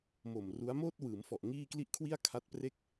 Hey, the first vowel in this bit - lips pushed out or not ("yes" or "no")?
yes